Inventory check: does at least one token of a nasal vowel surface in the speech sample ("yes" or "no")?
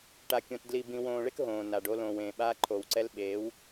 yes